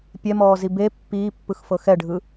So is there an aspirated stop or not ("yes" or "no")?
no